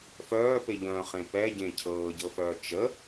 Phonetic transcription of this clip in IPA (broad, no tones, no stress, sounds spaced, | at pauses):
f œː p e ʎ œ̃ χ ẽ p ɛ ɟ ẽ cʰ ɤː ɟ ɤ f œː t͡ʃ ə